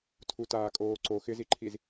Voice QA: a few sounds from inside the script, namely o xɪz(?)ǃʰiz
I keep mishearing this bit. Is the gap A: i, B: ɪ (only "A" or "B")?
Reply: A